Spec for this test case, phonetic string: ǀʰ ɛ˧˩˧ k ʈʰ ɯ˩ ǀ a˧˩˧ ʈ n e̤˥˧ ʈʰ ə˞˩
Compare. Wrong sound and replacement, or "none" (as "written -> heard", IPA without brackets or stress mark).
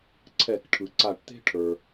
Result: n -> t̪